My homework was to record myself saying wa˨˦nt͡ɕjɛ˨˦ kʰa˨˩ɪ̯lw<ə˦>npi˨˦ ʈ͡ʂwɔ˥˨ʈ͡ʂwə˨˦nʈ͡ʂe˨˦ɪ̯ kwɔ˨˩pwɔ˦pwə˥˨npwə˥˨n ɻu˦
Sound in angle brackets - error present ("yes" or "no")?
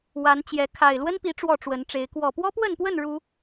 no